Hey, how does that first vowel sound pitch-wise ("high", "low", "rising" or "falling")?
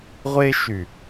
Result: high